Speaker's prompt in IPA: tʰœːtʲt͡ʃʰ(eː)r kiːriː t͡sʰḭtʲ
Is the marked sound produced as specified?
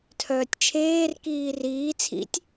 yes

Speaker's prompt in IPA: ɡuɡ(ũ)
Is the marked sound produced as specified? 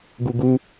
no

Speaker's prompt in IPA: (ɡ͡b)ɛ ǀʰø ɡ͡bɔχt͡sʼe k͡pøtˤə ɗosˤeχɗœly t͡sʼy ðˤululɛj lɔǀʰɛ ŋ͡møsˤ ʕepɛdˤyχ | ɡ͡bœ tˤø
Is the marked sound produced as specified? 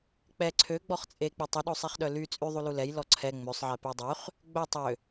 no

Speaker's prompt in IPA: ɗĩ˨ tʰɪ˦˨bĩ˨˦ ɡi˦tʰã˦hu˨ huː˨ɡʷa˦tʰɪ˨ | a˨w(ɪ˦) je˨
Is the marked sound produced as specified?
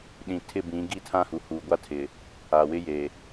yes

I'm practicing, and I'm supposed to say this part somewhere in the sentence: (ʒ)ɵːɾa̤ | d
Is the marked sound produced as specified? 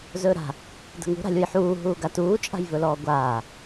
no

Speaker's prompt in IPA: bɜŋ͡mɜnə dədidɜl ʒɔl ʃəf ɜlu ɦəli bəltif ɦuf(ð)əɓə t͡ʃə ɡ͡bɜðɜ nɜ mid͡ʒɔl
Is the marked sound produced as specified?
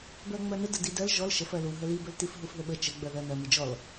yes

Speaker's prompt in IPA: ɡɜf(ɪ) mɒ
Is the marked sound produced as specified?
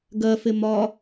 yes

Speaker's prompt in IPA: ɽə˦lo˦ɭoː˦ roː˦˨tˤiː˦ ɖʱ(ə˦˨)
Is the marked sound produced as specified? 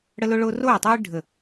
yes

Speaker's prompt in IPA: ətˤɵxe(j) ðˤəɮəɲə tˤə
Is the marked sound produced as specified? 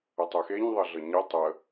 no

